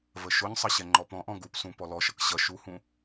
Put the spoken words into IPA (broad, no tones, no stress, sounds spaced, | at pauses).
v ə ʃ ʊ ɲ sˤ ʌ ɕ ɛ ŋ͡ǃ ɔ p ɔ̃ ʔ ɔ̃ ɡ u p s ũ p ɔ l ɔ ʃ ʌ k ɕ ʌ ʃ u h ũ